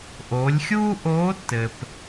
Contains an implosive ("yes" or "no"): no